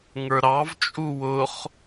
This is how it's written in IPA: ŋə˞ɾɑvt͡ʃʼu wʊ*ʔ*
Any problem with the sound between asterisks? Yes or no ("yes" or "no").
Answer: yes